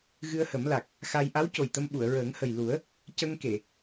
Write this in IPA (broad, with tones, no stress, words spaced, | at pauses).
ɣɨ˧ə̯hə˨˩˦mla˨˩k̚ | xa˧j ʔa˧˥w co˨˩jt̪ə˧m ɓu˨˩˨ə̯ɹəː˨˩˦ŋhə˨˩j lu˨˩˦ə̯ | cə˧ŋke˨˩˨